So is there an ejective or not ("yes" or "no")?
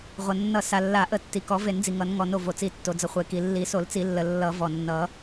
no